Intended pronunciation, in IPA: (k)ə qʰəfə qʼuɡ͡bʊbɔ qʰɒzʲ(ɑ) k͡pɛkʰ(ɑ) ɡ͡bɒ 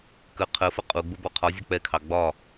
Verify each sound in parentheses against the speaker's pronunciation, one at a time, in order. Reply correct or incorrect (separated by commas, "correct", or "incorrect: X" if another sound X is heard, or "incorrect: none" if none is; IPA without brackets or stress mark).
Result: correct, incorrect: ɒ, correct